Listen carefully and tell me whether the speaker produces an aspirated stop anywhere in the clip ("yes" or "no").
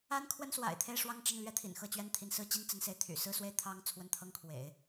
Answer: yes